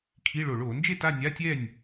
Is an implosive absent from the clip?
yes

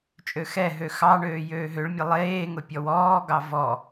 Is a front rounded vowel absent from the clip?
no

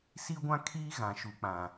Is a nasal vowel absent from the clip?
no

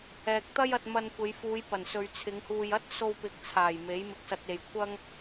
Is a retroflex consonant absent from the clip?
yes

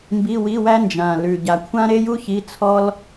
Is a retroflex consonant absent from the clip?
yes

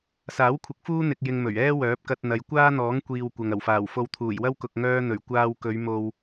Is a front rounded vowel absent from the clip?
no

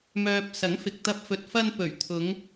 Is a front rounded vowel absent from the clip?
no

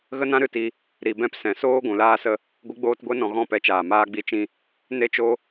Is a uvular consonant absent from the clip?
yes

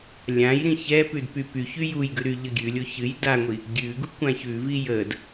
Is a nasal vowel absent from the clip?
no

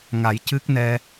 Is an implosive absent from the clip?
yes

